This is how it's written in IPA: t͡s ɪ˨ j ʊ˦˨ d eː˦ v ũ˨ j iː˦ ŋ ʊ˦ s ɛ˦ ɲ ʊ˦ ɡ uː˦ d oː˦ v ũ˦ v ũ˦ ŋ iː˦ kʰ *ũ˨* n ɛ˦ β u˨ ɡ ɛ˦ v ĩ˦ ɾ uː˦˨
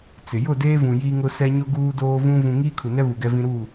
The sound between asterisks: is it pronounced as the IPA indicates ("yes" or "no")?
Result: no